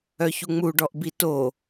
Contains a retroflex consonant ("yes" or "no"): yes